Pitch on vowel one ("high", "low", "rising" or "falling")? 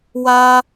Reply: high